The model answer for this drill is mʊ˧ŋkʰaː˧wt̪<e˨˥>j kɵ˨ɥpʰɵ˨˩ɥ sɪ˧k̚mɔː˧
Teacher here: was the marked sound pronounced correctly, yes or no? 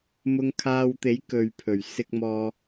yes